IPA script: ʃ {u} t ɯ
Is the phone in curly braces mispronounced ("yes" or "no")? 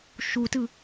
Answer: no